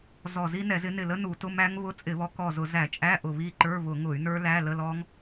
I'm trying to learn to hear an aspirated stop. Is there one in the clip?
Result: no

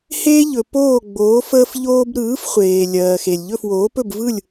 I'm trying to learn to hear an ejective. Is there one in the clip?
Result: no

